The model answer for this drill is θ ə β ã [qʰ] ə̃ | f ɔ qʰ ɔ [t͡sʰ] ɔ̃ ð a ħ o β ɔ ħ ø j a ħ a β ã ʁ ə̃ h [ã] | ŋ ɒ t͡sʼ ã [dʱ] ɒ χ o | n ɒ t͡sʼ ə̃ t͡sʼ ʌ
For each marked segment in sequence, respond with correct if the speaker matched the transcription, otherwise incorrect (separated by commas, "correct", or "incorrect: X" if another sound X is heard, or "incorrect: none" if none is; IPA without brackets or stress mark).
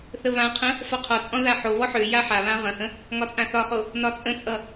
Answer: correct, incorrect: t͡sʼ, incorrect: ə̃, incorrect: θ